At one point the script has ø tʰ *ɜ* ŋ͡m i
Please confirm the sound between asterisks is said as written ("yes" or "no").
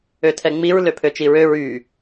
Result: no